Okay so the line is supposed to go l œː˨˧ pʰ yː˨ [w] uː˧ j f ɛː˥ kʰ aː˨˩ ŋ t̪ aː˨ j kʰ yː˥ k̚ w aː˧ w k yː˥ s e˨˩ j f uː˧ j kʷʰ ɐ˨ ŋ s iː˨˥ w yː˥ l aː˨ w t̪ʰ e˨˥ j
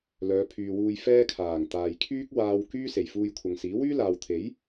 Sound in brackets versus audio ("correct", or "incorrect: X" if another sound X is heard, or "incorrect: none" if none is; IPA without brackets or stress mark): correct